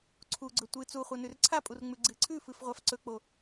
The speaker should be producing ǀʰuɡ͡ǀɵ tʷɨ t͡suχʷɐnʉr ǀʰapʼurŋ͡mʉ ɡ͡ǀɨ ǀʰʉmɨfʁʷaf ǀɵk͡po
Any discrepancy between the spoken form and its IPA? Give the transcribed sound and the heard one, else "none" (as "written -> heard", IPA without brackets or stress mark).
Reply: m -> f